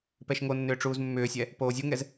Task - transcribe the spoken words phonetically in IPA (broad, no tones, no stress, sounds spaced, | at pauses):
p ɛ ʃ ŋ o nː ʏː ʈ͡ʂ uː z mː ʏː sʲ ɛ | p oː zʲ u ŋ ɛ z